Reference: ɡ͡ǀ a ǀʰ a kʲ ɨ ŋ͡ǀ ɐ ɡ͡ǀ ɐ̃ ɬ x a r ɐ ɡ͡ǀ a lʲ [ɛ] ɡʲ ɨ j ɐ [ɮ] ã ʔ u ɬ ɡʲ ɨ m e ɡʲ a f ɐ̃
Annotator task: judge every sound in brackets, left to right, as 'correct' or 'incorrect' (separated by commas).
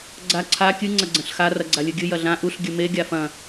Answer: incorrect, correct